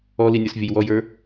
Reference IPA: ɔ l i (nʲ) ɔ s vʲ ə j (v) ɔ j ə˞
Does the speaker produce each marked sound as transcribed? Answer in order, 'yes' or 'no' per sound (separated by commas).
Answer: yes, no